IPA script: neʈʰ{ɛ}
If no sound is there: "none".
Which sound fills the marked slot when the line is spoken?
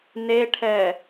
ɛ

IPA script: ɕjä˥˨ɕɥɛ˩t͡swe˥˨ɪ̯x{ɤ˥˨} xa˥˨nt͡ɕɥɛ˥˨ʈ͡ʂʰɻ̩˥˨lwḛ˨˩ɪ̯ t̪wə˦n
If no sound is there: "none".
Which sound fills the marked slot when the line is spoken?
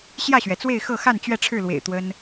ɤ˥˨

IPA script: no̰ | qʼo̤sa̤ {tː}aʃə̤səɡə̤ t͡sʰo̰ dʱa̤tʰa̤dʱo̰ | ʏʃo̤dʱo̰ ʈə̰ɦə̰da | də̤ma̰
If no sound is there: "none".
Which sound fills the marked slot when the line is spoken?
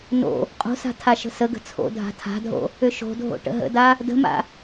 tʰ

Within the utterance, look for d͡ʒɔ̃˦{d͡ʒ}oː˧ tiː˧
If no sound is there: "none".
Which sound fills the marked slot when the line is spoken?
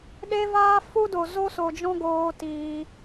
ɡ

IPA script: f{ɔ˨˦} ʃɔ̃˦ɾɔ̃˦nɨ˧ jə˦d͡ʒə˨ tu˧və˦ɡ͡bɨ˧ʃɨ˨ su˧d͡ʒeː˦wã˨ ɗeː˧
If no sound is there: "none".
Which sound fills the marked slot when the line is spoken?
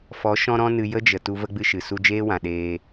ɔ˨˦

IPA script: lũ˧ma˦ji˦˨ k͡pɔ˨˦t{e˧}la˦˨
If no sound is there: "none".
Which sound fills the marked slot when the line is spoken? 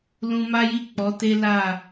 e˦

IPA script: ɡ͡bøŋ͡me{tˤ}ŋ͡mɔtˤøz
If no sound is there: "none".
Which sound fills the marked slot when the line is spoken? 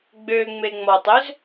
none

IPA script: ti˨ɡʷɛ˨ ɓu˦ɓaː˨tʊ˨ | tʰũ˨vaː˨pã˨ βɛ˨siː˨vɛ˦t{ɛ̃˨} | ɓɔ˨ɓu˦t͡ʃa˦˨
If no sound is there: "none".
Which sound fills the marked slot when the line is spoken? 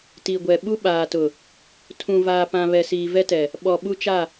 ɛ˨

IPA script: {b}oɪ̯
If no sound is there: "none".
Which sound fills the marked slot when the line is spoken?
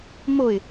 m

